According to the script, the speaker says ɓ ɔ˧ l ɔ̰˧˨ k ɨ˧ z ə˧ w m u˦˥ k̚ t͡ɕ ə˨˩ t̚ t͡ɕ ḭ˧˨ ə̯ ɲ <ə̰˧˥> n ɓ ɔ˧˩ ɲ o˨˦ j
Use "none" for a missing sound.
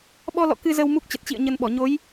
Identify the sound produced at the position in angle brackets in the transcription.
ə˧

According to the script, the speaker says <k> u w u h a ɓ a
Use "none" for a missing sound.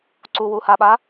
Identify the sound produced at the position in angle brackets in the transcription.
ǀ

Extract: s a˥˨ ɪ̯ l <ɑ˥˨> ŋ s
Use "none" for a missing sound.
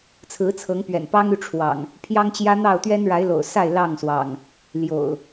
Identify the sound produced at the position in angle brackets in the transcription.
ɑ˥˨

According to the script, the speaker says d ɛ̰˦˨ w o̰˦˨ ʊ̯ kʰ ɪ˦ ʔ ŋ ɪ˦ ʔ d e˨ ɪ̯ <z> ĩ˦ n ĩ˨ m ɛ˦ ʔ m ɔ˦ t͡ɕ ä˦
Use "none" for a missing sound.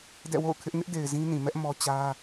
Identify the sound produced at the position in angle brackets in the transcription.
z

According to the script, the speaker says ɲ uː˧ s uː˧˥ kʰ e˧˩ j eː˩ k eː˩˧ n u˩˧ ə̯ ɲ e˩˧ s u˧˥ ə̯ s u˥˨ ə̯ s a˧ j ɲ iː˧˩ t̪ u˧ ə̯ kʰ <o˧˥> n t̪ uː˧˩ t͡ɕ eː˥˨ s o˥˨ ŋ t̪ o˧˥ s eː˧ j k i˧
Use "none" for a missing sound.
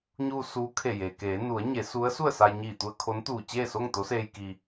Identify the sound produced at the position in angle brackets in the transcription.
o˧˥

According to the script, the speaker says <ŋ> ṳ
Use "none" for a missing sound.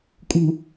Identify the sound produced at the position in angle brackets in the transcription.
kʼ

